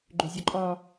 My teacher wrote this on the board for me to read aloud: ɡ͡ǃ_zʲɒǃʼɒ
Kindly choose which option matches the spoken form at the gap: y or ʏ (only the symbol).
ʏ